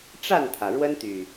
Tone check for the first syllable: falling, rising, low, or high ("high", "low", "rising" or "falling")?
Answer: falling